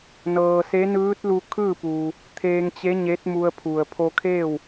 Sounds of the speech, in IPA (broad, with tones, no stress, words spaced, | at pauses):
nɤː˩se˧˥ nɯː˧˥t̚ lu˧kʰɯː˥˨puː˩ | t̪ʰeː˧ŋt͡ɕe˧˥ɲe˧˥t̚mu˧ə̯ pʰu˩ə̯pʰo˧kʰeː˥˨w